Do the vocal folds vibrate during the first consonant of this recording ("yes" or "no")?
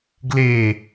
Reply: yes